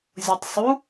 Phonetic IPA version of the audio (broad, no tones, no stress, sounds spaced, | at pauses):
zʲ o tˤ sˤ u